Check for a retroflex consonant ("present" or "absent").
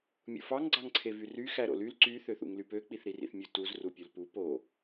absent